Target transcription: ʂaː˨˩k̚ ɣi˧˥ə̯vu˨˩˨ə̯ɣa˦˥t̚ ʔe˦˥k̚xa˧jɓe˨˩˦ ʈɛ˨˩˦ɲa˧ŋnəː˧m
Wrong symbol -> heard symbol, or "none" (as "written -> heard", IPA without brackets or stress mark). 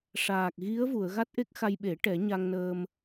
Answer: none